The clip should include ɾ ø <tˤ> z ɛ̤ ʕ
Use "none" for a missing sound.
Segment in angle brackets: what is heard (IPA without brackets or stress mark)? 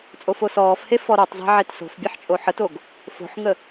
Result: tˤ